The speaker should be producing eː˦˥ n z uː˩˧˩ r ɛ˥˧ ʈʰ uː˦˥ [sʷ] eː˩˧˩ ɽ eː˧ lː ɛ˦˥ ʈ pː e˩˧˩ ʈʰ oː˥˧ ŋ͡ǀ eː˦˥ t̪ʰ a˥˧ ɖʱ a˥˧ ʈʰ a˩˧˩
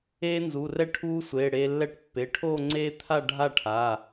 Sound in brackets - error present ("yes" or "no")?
no